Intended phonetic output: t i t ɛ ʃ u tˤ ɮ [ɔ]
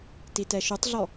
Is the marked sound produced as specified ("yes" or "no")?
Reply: yes